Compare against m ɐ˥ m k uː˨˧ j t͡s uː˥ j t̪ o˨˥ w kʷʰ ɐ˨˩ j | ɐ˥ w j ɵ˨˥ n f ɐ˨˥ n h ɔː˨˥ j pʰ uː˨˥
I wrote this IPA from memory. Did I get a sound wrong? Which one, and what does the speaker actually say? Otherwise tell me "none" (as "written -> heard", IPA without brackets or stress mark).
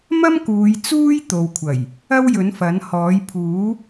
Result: o˨˥ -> o˨